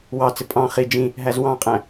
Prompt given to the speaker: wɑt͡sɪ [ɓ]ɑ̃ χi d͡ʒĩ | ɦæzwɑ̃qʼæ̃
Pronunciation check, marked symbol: incorrect: pʼ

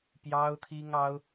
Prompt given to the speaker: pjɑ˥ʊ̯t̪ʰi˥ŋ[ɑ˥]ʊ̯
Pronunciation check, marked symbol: correct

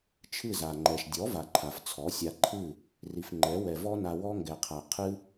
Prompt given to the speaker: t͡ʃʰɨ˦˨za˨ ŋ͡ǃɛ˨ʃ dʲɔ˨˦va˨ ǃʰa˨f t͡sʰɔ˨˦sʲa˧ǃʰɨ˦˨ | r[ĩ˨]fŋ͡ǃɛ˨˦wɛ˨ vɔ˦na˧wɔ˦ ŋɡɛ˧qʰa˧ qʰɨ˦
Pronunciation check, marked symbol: incorrect: i˨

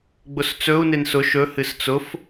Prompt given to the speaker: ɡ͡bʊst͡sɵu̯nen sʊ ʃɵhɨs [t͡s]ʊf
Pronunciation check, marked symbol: correct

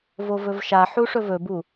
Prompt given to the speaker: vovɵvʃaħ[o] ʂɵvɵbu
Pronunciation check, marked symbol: incorrect: u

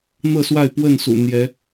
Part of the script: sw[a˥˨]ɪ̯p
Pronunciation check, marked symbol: correct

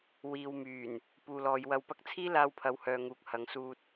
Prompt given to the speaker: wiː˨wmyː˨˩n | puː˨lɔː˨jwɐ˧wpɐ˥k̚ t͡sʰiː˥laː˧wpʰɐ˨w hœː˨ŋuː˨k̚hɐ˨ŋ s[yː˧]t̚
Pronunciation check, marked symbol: incorrect: uː˧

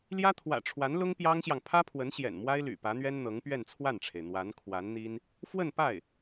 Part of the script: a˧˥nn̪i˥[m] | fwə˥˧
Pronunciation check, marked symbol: incorrect: n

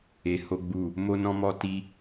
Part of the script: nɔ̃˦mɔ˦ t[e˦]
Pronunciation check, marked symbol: incorrect: i˦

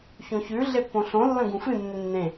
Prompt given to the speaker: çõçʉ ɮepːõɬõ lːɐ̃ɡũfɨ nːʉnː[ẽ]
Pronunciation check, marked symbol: correct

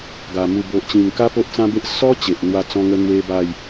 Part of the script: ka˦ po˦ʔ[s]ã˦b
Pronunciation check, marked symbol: incorrect: t͡s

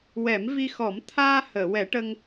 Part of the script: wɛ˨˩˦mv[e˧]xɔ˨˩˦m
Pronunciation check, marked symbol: incorrect: i˧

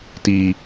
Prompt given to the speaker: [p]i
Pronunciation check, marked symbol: incorrect: t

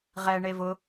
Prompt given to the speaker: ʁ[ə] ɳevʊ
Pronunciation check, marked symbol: incorrect: ɛ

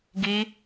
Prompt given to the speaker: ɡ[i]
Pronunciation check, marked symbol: correct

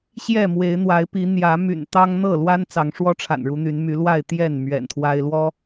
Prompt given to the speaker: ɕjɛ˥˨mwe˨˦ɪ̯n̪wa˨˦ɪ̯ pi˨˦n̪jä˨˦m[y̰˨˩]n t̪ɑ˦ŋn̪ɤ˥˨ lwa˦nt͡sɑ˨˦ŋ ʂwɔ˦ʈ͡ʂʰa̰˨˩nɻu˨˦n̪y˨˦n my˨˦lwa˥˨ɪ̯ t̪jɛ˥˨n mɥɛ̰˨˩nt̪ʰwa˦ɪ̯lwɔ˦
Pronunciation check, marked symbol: correct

